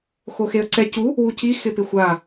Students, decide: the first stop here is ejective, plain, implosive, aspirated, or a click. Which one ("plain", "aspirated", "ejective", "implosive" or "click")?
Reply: click